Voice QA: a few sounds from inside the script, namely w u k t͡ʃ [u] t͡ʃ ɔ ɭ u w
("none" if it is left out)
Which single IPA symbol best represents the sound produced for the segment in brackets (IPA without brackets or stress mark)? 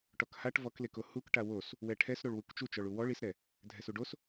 u